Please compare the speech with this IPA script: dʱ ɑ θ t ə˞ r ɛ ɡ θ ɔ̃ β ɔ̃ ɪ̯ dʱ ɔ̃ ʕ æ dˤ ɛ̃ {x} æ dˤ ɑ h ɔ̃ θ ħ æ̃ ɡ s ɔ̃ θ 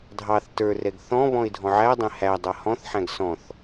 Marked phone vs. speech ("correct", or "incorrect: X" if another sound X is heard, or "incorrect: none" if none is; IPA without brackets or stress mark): incorrect: h